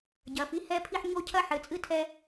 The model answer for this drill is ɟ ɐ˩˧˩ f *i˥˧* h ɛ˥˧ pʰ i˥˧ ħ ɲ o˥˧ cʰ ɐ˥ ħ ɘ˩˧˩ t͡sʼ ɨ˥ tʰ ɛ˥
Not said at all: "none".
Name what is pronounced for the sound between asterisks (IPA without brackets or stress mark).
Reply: i˥˧